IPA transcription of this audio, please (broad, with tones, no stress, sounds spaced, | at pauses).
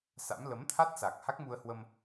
s a̰˧˥ m l ə˨˦ m t̪ʰ a˦˥ t̚ s a˨˩ k̚ h a˦˥ k̚ m u˧ ə̯ h w ə˧ m